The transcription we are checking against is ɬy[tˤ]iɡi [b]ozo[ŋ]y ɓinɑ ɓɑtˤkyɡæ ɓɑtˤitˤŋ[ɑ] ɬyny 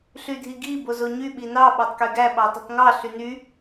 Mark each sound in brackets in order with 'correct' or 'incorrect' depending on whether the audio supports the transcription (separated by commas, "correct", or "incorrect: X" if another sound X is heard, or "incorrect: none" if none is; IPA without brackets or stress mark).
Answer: incorrect: dʱ, correct, incorrect: ɲ, correct